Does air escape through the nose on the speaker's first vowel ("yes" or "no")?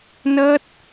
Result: no